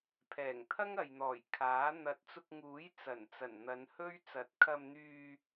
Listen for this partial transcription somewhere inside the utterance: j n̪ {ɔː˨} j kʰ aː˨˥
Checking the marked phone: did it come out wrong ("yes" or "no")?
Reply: yes